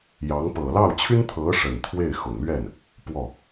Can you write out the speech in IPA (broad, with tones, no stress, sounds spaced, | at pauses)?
j ɑ˧˥ ŋ p ɤ˨˩ l ɑ˥˩ ʊ̯ t͡ɕʰ y˥ n t̪ʰ ɤ˧˥ ʂ ə˨˩ n t̪ʰ w e˥˩ ɪ̯ x ʊ˨˩ ŋ l ɥ ɛ˥˩ n | p w ɔ˥˩